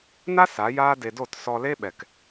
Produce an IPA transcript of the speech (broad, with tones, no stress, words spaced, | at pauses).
na˦ sa˨˦jaː˦ de˧do˦˨t sɔ˧le˦ ɓɛ˨k